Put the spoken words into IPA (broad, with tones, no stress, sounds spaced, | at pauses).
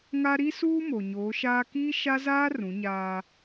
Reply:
ŋ a˦ ɾ i˦ s uː˦ m o˨ ɲ oː˨˦ ʃ aː˦ k iː˦ ʃ a˦ z aː˦ r ũ˨˦ ɲ aː˦